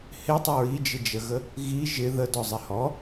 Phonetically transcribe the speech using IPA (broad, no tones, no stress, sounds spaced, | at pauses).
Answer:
h ɪ tˤ ə ɹ i d͡ʒ ɪ d͡ʒ ə ɣ ə | ɣ i ʒ ɪ ð ə d ɔ zˤ ɪ h ɔ